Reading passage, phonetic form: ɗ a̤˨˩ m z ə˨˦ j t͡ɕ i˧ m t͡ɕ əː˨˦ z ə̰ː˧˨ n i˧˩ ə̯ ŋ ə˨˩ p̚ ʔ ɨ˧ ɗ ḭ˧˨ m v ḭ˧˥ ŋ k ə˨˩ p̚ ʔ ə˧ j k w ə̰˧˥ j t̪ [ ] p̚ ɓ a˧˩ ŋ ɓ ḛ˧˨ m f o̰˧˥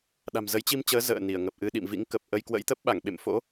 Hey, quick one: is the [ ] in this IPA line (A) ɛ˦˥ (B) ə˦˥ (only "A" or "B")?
B